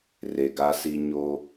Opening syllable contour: low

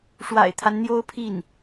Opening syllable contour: low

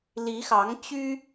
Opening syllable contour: rising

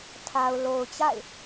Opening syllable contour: low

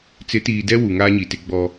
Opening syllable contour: rising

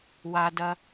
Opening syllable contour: low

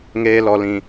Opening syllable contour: low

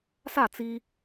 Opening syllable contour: falling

